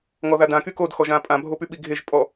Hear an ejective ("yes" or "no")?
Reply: yes